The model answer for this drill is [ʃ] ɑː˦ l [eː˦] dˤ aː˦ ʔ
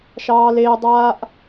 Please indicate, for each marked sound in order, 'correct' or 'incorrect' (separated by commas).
correct, correct